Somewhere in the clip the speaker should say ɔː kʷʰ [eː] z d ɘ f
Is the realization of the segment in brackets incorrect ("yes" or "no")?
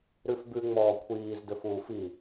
yes